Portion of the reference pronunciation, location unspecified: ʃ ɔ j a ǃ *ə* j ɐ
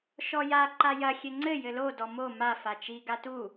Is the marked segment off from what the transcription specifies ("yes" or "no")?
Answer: yes